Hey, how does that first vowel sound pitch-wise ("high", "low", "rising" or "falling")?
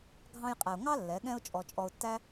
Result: high